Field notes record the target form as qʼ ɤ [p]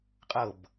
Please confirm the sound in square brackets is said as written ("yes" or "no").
no